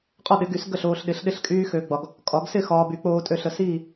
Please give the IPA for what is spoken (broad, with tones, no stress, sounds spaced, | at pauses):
qʼ ɒ˥˨ ɗ ɪ˨˩˦ ɡ y˨˩˦ s ɡ ə˥˨ ɬ oː˨ ɬ ɗ ɪ˨˩˦ ɬ ɗ ɪ˥˨ ɬ kʼ yː˦ x ø˨ ɡ͡b ɒ˨ ɡ | kʼ ɒ˨˩˦ ɡ s ɪ˥˨ x ɒː˨ b y˨˩˦ k͡p oː˦ tʼ ø˦ ɬ ə˨ s iː˥˨